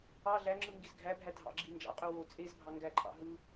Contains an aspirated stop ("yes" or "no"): no